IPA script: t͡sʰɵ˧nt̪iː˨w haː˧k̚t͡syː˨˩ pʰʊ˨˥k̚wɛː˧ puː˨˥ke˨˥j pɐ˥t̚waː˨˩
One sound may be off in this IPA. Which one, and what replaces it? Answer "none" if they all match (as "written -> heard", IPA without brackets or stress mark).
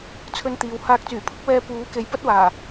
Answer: none